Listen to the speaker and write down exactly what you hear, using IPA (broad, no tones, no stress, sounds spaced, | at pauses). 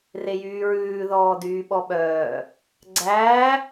r e j yː ɹ ʉː ð ɔː d yː ɓ ɔ ɓ œː | ɡ͡ǀ æː